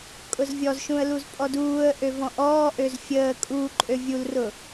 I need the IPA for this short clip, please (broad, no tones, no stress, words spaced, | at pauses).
kʼʊzvʲɔzʃũə̯ luzpʼɔduːə̯ʔø vɔ̃ʔɔːʔøz fʲəː kʼu ǃʼøvʲulrʊ